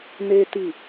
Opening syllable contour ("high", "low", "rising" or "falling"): high